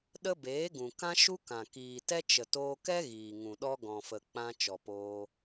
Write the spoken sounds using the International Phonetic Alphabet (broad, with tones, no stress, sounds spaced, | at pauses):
ɗ ə˦ b eː˨˦ ɡ ũ˨ k ã˦ ʃ u˦ k ã˨ k iː˨ t ɛ˦ t͡ʃ ə˨ t oː˧ k ɛ˦ ɣ iː˨ ŋ ũ˨ ɗ ɔ˦ ɡ ɔ̃˨ f ə˨ k͡p ã˧ t͡ʃ ɔ˨ p oː˧